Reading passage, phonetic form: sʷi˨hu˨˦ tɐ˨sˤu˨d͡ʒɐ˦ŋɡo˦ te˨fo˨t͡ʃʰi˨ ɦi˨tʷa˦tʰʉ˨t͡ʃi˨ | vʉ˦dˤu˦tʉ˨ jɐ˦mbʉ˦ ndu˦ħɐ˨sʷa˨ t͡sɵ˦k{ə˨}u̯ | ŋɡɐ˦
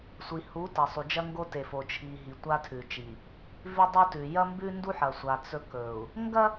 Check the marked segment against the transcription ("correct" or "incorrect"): incorrect